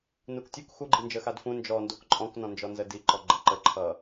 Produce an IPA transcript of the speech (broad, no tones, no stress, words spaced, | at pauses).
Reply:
nuktʲuk xuɡ͡ǃind͡ʒə xadfũ nd͡ʒɔndok ǃʼɔ̃knɔ̃nd͡ʒɔ nzədiǃɔ ɡ͡ǃəǃə ǃʰʌ